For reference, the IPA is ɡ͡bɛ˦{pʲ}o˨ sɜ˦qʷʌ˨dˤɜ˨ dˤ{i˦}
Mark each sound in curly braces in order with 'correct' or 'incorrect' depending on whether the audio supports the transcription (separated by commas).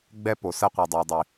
incorrect, incorrect